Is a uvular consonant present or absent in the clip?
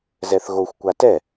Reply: absent